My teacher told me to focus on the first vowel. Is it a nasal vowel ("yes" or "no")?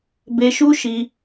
no